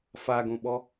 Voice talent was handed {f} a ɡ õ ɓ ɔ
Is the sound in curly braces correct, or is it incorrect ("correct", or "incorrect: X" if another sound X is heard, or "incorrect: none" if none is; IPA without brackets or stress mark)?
correct